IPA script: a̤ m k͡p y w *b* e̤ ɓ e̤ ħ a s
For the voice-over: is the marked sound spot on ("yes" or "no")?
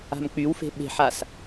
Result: no